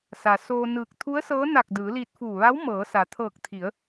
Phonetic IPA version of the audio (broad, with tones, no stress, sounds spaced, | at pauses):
s a˩ s oː˧ n ɯː˧˩ k̚ t̪ʰ u˧˥ ə̯ s ɤː˧˥ n a˧˩ k̚ d ɯː˩˧ l iː˧ t̚ f uː˧˩ ʋ a˧˥ w m ɤː˩˧ s a˩ t̪ʰ ɤː˧˩ k̚ t̪ʰ i˩˧ ə̯